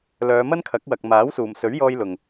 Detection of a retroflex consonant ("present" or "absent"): absent